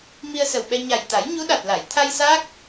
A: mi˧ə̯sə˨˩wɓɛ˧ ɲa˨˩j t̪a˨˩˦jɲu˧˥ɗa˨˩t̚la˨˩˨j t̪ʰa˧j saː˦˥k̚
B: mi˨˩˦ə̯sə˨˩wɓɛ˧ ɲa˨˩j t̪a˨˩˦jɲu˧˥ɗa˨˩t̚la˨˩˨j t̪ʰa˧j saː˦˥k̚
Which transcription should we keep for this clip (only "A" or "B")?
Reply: A